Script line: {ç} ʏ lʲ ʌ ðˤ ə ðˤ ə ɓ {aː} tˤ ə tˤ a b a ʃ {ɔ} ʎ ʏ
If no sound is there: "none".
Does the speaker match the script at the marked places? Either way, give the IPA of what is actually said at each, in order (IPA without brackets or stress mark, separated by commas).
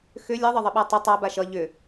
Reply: x, a, ʌ